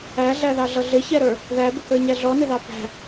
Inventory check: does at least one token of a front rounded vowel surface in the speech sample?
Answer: no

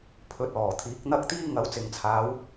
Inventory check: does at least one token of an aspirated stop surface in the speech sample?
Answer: yes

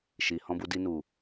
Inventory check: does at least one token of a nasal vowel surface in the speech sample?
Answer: yes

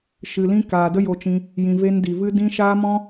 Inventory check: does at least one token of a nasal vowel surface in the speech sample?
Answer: yes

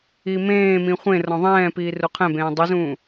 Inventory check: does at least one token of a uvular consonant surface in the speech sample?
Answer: yes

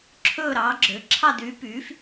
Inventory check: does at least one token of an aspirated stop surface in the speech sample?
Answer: yes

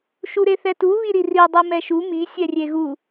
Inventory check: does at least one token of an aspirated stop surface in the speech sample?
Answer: no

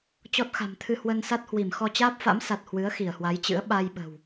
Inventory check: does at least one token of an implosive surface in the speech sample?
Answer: yes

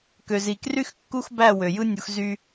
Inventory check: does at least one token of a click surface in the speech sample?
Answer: no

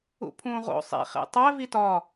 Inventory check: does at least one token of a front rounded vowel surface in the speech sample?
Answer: no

